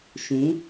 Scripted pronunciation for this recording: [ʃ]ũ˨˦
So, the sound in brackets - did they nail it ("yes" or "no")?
yes